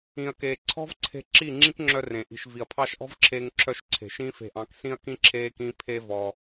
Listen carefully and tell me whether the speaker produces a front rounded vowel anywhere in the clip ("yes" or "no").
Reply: yes